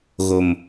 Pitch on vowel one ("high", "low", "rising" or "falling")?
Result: low